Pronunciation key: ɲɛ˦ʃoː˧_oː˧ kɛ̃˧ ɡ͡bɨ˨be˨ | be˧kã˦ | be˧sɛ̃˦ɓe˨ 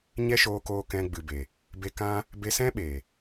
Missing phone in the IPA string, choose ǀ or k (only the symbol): k